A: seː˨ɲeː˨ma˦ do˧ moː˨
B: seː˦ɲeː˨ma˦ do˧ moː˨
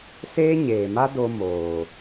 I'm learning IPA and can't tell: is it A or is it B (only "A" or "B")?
B